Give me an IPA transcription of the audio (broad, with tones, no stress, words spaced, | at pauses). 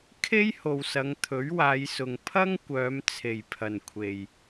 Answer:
kʰe˥jho˨wsɐ˨˧ŋ t̪ʰɵ˨˥ɥwaː˨˧jsʊ˨ŋ pʰɐ˥ŋkʷœː˨˧m t͡sʰe˨jpʰɐ˨n kʷʰe˨j